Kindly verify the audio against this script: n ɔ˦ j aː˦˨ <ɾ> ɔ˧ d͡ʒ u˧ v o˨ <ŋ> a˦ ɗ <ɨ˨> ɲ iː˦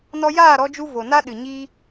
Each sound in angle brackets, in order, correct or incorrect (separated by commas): correct, incorrect, correct